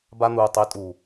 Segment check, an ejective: present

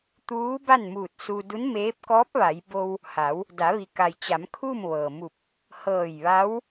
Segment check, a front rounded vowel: absent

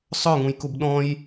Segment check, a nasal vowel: present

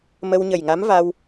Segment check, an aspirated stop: absent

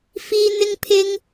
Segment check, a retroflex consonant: absent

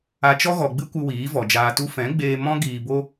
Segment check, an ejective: absent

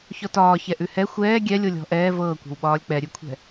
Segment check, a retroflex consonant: absent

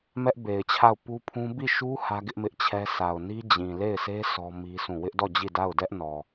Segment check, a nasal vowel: present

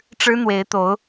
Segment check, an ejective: absent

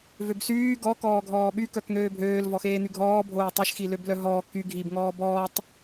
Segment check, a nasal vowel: absent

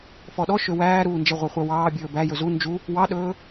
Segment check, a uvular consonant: present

